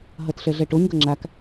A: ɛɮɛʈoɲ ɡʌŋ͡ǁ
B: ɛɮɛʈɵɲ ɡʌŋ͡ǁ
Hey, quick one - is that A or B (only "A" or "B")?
A